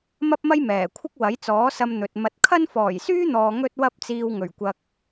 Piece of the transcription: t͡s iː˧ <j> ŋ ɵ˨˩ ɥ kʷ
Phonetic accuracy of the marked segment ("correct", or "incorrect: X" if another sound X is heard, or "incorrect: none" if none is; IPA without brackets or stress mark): incorrect: w